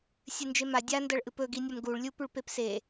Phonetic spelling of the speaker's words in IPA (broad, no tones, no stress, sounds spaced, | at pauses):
sʲ ɨ n d͡ʒ e m a dʲ a n d ɐ ɭ ʔ ɨ p ɵ ɡ i nʲ ɐ m ɡ u ɭ lʲ u p ʉ ɭ p e p s e